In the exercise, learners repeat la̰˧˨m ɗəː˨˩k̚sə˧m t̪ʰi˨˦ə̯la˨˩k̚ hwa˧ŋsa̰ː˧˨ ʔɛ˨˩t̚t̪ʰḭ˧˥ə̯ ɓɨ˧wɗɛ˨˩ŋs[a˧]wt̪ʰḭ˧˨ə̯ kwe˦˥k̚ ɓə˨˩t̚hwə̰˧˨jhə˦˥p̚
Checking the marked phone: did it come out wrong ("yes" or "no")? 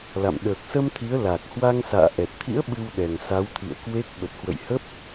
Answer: yes